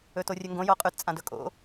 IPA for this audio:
ɵtorʲɵŋɡõ joqʼʉt t͡sʼãdɵkʼo̰

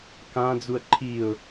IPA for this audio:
kãd͡zuə̯ ǃʰiʊ̯

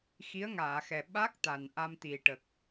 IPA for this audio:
xi˧˥ə̯ŋaː˨˩˨xɛ˨˩ ɓa˦˥k̚ t̪a˨˩nʔa˧mt̪i˨˩ʈə˨˩k̚

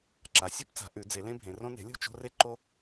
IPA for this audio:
ǁa˩˧sʲo˦pt͡sa̤˩˧ ʔʉ˩˧d͡ze˩˧lẽ˦bʱẽ˩˧ rõ˦ne̤˩˥lʲo̤˦t͡ʃo̤˦ re˦ ǃo˦

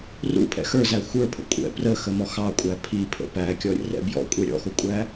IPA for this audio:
rṵpʰɛ̰ xə˞zæ xʷə˞pʰə̰ kʷʼɛ̰ prəxəmɔ xɑkʷʼæ pʰipʰə̰ pækʲɔ ɾʲə̰rɛ̰ bjɔ̰kʷʼɛ ɾʲɔ̰xʊkʷʼæ

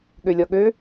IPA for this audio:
ɠølʲɔɠø

